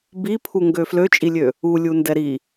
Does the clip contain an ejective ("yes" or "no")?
yes